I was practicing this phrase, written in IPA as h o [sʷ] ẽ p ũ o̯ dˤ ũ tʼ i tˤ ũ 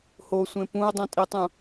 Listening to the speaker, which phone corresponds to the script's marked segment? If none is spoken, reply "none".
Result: sʷ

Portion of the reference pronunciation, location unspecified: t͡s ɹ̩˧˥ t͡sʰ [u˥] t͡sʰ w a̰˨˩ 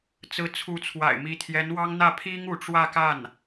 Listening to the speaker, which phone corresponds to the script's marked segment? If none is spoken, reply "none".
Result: u˧˥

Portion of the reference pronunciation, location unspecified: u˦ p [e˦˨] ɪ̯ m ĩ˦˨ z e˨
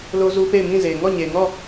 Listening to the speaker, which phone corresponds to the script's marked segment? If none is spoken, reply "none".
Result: e˦˨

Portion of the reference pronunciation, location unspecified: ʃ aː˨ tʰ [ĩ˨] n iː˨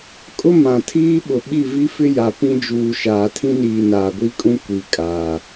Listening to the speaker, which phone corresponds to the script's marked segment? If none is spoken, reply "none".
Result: ĩ˦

